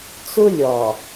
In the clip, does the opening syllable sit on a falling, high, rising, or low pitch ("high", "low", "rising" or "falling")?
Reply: high